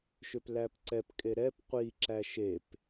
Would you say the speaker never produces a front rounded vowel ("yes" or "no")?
no